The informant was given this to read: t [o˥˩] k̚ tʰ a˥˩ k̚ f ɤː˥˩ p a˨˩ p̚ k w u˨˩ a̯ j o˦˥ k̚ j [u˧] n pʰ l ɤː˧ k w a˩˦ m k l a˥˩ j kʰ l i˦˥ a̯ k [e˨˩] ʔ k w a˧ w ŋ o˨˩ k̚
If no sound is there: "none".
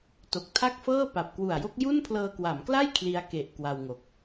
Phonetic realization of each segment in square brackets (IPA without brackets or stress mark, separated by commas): o˨˩, u˥˩, e˨˩